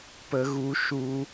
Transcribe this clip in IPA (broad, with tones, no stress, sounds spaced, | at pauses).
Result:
p ə˦ ɣ u˦ ʃ u˦